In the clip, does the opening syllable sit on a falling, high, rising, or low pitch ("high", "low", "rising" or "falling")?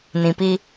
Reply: low